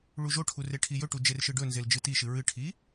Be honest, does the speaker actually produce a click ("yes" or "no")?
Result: no